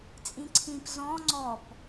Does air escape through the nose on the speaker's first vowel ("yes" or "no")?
yes